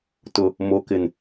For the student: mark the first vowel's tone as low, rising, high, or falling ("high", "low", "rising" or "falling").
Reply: low